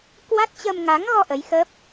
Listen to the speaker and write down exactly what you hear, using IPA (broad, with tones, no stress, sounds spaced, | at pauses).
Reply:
k w a˦˥ t̚ t͡ɕ ə˧ m ŋ a˨˦ ŋ ɣ ɔ˧ ʔ ə˨˦ j x ə˦˥ p̚